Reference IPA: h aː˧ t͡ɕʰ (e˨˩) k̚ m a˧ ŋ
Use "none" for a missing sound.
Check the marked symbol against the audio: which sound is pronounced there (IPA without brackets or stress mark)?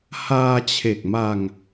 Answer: e˨˩